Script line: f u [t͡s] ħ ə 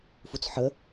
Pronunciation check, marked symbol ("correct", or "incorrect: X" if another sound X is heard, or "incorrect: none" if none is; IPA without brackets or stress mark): correct